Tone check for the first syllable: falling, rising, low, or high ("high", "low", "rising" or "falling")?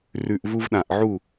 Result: low